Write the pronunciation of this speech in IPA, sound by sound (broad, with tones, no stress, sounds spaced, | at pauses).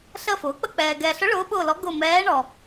ɬ ə˦˨ f ʊː˩˥ k͡p ə˦˨ k͡p ɛː˨ ɡ ɛː˨ ɬ ʊ˧˥ ɭ ʊː˧˥ ɓ ʊː˦˨ l ɔ˧˥ ɡ ʊ˦˨ m ɛː˧˥ ɳ ɔ˨